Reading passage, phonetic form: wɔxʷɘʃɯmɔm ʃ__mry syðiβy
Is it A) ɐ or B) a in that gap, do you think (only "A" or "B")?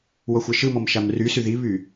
B